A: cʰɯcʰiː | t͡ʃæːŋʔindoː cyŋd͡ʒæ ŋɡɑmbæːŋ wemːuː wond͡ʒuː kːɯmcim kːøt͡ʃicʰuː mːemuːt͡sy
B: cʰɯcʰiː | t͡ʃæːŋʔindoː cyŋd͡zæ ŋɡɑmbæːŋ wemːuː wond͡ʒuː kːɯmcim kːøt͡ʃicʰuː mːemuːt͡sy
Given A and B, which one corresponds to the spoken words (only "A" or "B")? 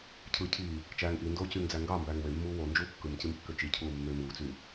B